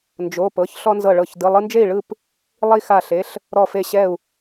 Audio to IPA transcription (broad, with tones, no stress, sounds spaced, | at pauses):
n d͡ʒ o˩˧˩ p ɤ˩˧˩ ç ɬ ɔ˦ n z ɤ˧˩ ɭ ɤ˧˩ ç d ɯ˩˧˩ lˠ ɯ˦ n d͡ʒ e˥˨ i̯ ɭ ɯ˥˨ p | lˠ i˦ x a˧˩ ɬ e˩˧˩ ɬ | ɾ ɔ˧˩ f e˧˩ ɕ ɛ˧˩ u̯